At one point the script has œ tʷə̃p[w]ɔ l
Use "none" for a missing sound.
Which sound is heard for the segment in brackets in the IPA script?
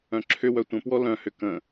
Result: w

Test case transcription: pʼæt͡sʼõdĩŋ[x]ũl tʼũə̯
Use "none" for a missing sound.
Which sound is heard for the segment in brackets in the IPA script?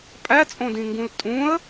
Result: ɡ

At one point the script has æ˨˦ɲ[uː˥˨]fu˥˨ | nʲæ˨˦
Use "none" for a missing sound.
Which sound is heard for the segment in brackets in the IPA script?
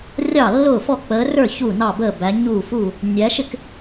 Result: uː˥˨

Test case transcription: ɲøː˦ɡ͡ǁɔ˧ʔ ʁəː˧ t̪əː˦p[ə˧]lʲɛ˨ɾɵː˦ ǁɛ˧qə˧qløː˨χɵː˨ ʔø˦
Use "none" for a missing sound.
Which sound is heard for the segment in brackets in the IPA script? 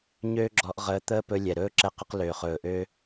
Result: ɵ˧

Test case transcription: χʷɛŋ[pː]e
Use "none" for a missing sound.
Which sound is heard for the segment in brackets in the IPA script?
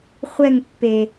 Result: pː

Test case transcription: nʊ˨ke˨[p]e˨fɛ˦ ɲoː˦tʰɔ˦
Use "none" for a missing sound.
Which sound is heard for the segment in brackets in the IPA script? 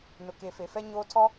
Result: f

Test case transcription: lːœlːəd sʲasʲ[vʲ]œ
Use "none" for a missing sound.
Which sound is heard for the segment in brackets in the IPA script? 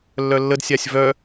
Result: v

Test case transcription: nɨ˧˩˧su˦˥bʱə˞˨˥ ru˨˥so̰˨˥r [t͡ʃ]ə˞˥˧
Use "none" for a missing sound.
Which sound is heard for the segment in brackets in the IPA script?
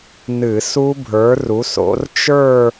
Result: t͡ʃ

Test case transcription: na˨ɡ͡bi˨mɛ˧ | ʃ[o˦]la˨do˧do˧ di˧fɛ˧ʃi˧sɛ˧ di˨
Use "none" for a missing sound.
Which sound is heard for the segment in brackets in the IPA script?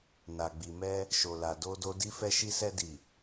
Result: o˨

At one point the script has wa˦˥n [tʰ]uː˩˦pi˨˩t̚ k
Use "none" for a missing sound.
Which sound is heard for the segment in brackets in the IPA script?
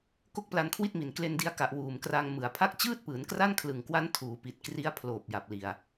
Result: tʰ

